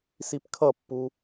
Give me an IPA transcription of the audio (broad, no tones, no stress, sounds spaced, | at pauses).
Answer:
s i p kʰ ʌ pː u